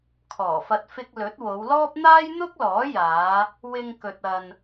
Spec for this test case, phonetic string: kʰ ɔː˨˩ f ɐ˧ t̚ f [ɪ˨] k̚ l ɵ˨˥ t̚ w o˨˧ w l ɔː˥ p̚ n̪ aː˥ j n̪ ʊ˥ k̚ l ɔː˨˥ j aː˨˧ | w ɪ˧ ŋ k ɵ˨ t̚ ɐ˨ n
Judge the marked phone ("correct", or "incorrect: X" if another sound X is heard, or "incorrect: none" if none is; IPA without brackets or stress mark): incorrect: ɪ˧